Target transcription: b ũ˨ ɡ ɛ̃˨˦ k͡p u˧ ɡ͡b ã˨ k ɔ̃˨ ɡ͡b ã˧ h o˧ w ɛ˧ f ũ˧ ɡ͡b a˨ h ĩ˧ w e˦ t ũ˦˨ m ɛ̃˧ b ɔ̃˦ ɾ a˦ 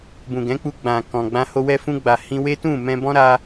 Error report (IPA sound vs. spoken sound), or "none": none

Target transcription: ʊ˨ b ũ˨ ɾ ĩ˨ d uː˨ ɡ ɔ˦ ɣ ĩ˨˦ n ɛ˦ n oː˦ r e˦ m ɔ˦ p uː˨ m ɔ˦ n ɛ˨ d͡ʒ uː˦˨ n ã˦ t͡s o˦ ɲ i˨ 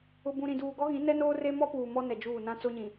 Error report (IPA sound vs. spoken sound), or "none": i˨ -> ĩ˨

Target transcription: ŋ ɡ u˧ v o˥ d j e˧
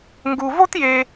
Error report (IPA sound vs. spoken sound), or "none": d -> t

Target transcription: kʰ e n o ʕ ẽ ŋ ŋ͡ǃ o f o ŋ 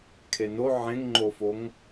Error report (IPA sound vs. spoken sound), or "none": none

